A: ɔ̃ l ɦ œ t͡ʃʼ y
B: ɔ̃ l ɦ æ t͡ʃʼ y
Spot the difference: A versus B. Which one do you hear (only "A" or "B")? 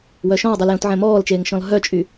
A